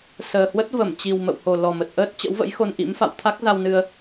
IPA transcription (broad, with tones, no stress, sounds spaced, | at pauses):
s əː˨˩ h w ə˦˥ t̚ v ə˧˩ m t͡ɕ i˨˩ w m ə̰˧˨ w h o˨˩ l ɔ˨˩ m ə˨˩ t̚ ʔ əː˦˥ t̚ t͡ɕ ə̰˧˥ w v ə̰˧˥ j x o˧ n ʔ ḭ˧˥ m f a̰˧˨ w t̪ʰ a˦˥ k̚ z a˧ w n ɨ˧ ə̯